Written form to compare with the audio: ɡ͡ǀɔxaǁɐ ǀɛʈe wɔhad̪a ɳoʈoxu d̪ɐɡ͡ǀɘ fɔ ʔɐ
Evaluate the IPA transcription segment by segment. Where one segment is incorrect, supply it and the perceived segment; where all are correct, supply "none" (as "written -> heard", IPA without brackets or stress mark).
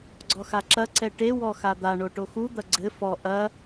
h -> x